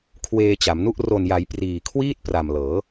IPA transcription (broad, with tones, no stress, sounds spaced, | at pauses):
kʰ w eː˧ t͡ɕ a˩˦ m n u˥˩ ʔ r o˨˩ n j a˩˦ j p r iː˨˩ kʰ w iː˥˩ t̚ p r a˨˩ m l ɤː˩˦